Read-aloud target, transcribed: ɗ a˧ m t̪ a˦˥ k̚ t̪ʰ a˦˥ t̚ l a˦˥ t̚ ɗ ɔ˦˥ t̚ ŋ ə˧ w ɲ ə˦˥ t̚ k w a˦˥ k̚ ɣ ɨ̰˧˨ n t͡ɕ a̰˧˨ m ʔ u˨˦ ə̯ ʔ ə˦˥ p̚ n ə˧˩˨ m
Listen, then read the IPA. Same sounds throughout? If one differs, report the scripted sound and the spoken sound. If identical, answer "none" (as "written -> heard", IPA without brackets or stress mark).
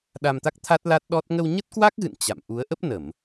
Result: none